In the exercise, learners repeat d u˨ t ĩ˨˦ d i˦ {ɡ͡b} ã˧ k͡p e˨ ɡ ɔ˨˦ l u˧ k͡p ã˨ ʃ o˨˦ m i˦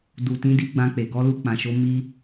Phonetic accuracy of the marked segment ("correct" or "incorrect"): correct